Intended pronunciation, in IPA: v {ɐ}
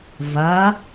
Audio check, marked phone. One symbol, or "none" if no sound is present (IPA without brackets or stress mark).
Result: ɐ